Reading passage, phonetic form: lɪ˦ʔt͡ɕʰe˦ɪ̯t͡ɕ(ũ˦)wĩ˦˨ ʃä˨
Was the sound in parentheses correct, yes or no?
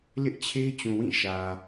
no